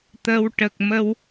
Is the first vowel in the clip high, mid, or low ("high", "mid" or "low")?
mid